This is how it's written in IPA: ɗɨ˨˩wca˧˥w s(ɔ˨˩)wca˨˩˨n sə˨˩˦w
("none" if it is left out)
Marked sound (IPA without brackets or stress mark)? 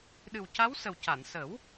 ə˨˩